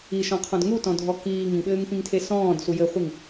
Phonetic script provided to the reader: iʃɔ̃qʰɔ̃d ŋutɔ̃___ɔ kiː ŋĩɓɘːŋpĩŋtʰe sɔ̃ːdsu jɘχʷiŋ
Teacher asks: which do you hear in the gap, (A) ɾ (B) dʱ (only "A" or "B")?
B